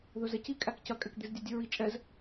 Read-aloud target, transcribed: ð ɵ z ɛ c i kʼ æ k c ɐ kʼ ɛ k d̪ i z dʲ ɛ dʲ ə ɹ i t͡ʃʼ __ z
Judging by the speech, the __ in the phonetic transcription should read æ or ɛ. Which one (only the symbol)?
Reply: ɛ